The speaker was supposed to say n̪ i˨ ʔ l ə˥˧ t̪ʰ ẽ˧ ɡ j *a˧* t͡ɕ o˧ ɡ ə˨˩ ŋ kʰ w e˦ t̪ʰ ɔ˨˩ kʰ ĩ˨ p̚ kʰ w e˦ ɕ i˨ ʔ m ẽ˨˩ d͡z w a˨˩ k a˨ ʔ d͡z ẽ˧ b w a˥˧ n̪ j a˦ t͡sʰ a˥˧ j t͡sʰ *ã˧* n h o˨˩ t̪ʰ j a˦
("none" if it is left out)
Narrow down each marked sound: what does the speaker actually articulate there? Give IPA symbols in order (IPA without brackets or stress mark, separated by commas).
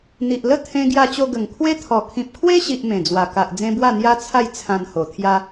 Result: a˧, ã˧